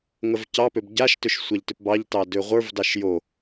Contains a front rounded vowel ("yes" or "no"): yes